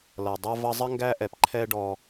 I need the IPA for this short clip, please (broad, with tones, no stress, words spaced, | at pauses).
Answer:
lʌ˨dˤʌ˥ vʌ˦zˤə˥ ŋɡæ˥ʔɛ˨p ǃʰɛ˥ ɖɔ˦